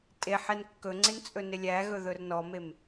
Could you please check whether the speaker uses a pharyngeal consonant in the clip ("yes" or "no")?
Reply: yes